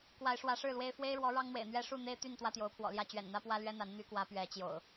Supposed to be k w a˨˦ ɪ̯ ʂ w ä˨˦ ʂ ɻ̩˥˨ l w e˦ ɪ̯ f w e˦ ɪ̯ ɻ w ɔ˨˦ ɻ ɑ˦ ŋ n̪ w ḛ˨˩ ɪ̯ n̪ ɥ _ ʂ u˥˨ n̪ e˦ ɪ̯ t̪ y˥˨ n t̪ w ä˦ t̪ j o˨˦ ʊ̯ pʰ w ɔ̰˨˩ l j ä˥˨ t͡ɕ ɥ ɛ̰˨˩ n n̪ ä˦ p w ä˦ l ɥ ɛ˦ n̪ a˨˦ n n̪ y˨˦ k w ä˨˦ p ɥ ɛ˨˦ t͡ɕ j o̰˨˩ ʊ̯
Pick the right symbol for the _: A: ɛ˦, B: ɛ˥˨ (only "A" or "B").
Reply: A